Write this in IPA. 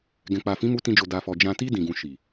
ɡ ɛ̃˨ k͡p a˨ f ĩ˨˦ m u˧ t ĩ˧ d͡ʒ o˨ d a˨ f ɔ˨ d͡ʒ ã˨ t i˧ d ĩ˨ ɡ ũ˨ ʃ i˨

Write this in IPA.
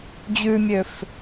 d͡ʑ ʉ mʲ ø f

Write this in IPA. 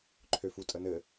ǃʰ ø f u tʼ ə n ɘ

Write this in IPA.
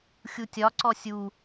xʲ u tʲ ɒ ǀ ɔ sʲ u

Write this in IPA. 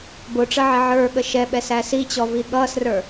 b ʊ ʈ͡ʂ ə ʕ ɪ ʕ ə˞ ɠ ə ʃ ɛ ɓ ɛ s æ s i t͡ɕ ɔ v i ɠ ʌː s r ə˞

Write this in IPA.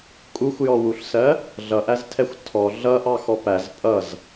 kʼ u xʷ j ɔ w u ɬ s ɜ | ɮ ʌ ʔ æ z tʰ ɛ xʷ tʰ ɔ ɮ ʌ ʔ ɑ x ɔ p æ z pʼ ʌ z

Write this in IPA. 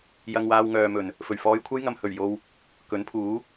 j ɐ˧ ŋ w aː˧ w ŋ œː˨ m ɵ˨˩ n | f ɵ˨˩ ɥ f ɔː˧ j kʷʰ ɐ˥ j ŋ ɐ˨ m h ɵ˨˩ ɥ j o˧ w | k ɵ˨˥ n pʰ uː˨˥

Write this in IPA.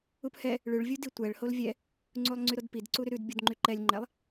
u p h ɛ | ɭ ʉ ɭ vʲ u d i tʷ ɛ ɭ h o l vʲ ɛ | ŋ͡ǀ u lˠ ŋ͡ǀ y ɾ o d p i d ǀ u ɾ y ɾ ʉ d bʲ u d ŋ͡ǃ y ǃ ɛ lʲ ŋ͡ǃ ɛ lˠ

